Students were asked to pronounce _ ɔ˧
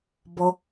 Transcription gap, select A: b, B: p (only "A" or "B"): A